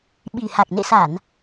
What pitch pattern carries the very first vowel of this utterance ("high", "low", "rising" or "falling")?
low